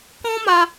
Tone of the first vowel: high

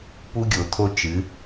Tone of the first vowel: high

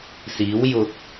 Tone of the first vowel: rising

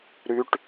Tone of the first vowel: low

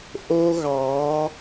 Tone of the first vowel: high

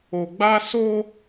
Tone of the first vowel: low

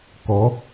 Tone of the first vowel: rising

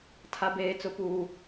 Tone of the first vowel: low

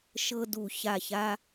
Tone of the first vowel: high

